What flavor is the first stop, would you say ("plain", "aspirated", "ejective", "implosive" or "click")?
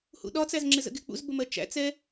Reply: implosive